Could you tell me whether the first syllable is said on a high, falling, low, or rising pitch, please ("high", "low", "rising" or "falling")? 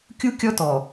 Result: high